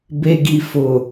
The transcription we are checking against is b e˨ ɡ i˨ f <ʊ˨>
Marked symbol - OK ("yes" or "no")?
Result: yes